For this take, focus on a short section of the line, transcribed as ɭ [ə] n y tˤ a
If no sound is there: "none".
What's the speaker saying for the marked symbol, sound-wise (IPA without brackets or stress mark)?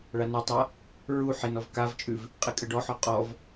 a